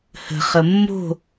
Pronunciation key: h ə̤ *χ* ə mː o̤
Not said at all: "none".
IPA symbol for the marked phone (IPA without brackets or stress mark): χ